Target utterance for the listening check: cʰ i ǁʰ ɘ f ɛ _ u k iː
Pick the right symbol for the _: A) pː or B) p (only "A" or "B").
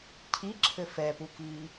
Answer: B